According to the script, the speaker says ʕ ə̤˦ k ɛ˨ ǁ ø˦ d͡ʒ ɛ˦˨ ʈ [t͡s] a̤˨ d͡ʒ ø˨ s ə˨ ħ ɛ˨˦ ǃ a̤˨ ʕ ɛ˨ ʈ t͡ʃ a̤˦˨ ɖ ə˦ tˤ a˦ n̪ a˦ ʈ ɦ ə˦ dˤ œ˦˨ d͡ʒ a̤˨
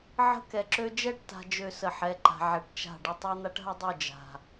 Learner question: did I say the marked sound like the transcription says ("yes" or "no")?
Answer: no